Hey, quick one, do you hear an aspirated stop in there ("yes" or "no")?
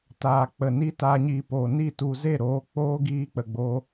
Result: no